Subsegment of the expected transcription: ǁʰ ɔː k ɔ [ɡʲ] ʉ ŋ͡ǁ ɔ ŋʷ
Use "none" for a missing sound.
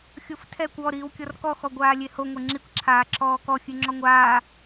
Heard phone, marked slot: xʲ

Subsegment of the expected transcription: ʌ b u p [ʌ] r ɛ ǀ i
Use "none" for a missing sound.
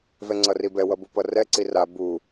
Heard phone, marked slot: ʌ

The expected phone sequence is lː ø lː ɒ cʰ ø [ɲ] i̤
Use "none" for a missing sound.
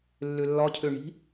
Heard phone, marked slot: ɳ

